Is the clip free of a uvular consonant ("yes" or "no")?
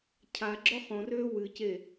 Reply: no